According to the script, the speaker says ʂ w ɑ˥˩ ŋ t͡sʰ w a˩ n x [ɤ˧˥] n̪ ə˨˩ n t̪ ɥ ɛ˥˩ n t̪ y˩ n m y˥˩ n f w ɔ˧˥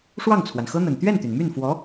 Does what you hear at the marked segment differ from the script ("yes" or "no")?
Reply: yes